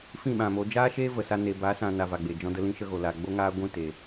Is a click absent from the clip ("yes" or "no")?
yes